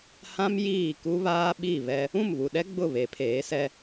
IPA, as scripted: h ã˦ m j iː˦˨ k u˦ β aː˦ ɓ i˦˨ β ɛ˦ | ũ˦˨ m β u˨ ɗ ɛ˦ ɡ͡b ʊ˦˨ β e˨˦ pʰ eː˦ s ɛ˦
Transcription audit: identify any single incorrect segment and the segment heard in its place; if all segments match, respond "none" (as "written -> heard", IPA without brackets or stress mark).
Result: eː˦ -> eː˨˦